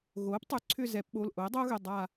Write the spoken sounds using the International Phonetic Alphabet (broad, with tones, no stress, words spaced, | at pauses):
ɣoː˩˥ptˤʏ˩˥ ǀʰʏ˦˨zɛ˩˧pɓo˩˧˩l ʔo˩˥ɪ̯dˤoː˦˥ɣʏ˩˧˩ dˤa˦˨